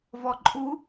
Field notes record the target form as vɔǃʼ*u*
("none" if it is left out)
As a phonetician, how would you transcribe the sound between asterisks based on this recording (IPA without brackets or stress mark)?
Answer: u